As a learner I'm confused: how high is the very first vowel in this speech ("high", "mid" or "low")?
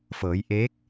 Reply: mid